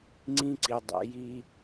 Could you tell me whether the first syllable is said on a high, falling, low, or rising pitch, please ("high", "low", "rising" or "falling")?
high